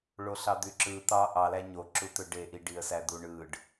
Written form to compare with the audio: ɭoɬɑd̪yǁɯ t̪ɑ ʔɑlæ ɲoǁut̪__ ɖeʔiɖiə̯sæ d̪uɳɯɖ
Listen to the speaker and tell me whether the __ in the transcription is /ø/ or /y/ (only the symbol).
ø